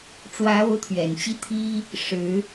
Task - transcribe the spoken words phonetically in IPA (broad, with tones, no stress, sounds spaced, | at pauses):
ʈ͡ʂ w ä˧˥ o˧˥ ʊ̯ t̪ʰ ɥ ɛ˨˩ n t͡ɕ i˥˩ t̪ʰ i˥ | ʂ ɻ̩˧˥